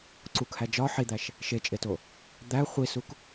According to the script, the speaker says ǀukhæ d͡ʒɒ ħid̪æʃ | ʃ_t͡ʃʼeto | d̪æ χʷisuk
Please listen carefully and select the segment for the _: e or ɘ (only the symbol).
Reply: e